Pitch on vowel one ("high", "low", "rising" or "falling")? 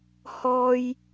high